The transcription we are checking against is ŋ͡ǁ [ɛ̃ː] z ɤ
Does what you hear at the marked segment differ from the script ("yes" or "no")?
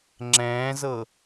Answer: no